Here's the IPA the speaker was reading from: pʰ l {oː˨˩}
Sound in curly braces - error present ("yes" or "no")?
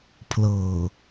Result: yes